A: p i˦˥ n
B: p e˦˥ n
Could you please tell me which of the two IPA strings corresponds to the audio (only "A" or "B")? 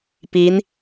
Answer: A